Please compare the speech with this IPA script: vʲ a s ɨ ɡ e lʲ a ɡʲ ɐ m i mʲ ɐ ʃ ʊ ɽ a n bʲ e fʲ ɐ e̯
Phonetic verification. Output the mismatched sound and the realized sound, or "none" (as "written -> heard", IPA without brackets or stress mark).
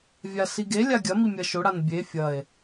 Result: ɨ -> i